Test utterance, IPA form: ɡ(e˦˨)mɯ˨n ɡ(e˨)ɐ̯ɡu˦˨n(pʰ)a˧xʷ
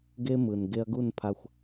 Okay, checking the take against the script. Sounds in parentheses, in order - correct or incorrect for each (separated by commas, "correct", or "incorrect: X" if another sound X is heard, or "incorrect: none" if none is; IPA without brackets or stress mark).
incorrect: e˦, incorrect: e˧, correct